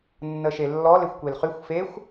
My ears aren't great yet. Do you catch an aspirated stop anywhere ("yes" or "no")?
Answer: no